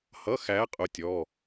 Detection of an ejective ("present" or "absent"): present